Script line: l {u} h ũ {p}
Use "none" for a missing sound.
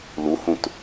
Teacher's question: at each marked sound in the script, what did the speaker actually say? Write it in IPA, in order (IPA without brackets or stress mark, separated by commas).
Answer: u, t